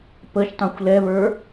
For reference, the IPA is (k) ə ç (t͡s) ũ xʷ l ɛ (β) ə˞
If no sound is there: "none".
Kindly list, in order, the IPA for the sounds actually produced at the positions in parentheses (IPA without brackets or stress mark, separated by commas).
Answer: p, tˤ, β